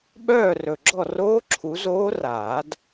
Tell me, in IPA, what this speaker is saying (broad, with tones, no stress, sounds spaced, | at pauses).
ɓ œː˥˨ r ɵ˨˩ ɡ͡ǁ ɔ˥˨ r oː˦˥ ǁʰ u˨˦ z oː˦˥ r aː˨˩˦ d